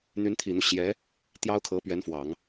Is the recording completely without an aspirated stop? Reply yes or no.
no